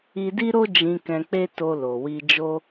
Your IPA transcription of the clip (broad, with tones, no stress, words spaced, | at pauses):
i˧di˦ɾo˦ d͡ʒĩ˧ kɛ̃˧k͡pe˦to˧ lo˨wi˧d͡ʒo˦